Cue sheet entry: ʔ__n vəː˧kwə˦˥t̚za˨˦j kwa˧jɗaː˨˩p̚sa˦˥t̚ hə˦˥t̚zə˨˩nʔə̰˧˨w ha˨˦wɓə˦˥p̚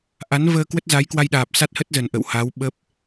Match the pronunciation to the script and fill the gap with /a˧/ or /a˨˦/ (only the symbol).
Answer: a˨˦